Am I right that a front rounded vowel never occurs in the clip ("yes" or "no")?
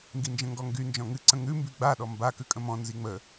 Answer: no